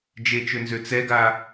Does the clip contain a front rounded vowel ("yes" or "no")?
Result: yes